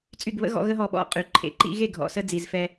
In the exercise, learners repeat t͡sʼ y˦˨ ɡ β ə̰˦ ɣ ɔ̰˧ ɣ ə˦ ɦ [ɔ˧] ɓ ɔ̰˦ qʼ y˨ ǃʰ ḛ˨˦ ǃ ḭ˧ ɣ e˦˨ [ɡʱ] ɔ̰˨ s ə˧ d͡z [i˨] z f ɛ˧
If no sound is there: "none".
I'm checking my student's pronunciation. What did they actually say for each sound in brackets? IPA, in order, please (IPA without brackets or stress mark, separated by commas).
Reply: ɔ˧, ɡʱ, i˨